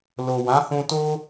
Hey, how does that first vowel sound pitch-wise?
low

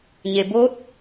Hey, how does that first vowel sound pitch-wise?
low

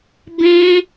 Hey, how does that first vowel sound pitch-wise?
high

